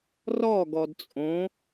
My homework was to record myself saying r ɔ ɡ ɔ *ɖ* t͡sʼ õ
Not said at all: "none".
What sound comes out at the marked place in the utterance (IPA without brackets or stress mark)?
d